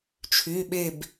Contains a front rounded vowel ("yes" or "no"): yes